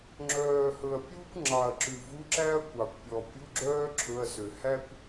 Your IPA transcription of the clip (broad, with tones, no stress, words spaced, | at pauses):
ŋ͡ǁœː˨˩hɵ˨˩ɐ̯pʲuː˥kʷ ŋ͡ǁɑ˨˩ɐ̯ǁʉ˨˩ vu˧˥˧ǁæ˥ɐ̯kʷɑ˨˩kʷ pʲɔ˨˩pʲu˧˥˧ɡ͡ǁœː˥ ǁʰɵ˧˥˧ɐ̯sø˨˩ hæ˥kʷ